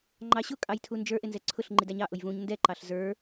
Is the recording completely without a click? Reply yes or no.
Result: no